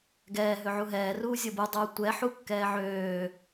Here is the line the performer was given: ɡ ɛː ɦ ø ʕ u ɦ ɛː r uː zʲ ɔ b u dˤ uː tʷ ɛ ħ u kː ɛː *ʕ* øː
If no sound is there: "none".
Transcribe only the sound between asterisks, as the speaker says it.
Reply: ʕ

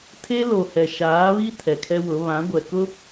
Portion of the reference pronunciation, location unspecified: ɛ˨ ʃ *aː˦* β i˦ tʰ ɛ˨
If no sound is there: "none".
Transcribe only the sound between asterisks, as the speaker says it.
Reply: aː˨˦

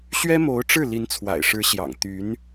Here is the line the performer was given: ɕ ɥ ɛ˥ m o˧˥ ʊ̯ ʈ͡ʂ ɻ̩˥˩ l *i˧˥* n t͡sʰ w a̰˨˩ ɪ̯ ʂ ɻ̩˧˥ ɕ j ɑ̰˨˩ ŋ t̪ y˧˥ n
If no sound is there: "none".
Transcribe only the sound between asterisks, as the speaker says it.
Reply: i˧˥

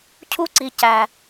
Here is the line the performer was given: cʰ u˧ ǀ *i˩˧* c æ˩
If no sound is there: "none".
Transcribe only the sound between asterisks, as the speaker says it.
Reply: i˩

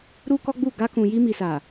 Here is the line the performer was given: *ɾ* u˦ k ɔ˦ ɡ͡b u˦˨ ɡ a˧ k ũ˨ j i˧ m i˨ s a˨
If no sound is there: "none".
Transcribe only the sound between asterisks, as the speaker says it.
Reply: ɾ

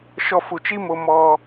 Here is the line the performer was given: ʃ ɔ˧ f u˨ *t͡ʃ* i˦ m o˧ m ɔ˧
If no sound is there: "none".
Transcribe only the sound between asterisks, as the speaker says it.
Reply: t͡ʃ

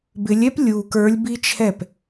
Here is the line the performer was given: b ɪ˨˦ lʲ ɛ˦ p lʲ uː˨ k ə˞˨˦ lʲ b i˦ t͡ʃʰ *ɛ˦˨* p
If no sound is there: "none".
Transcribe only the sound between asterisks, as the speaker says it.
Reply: ɛ˦˨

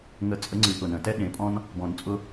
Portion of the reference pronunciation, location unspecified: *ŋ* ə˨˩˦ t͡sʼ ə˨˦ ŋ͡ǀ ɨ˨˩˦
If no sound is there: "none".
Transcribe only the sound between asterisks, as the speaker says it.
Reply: ŋ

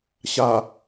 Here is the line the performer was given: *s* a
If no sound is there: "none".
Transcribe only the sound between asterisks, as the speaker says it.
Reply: ɕ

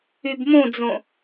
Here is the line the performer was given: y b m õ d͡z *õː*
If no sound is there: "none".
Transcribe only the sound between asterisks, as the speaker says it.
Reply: õ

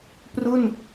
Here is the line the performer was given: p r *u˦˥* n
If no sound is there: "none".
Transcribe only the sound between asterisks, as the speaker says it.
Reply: u˥˩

